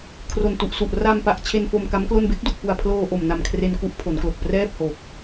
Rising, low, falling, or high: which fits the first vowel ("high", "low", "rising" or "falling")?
low